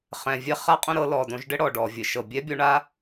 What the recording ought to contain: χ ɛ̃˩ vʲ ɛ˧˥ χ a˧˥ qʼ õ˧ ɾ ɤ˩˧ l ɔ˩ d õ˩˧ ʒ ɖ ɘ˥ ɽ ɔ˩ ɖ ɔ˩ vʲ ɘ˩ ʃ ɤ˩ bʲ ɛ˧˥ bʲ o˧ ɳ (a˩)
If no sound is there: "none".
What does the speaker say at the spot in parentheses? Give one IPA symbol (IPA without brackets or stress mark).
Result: a˥